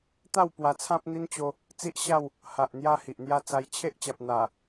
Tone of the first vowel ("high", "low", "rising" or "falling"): falling